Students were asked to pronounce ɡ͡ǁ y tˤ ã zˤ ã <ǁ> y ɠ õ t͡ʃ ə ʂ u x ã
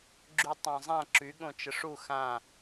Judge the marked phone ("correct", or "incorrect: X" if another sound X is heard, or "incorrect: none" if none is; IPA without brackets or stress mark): correct